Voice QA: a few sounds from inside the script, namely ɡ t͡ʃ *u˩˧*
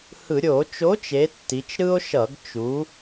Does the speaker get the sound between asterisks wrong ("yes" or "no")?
no